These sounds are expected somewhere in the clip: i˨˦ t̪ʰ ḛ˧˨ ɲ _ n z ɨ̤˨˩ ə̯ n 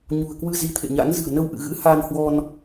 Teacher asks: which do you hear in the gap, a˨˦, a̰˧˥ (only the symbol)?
a̰˧˥